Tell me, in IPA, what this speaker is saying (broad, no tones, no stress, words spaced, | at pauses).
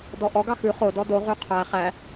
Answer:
dɔʔɔ ɡɑxʉ χodɔ do ʁyqʰæ χæ